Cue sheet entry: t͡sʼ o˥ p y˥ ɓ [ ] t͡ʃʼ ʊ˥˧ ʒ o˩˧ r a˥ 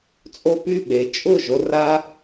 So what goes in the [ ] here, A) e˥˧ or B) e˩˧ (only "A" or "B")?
B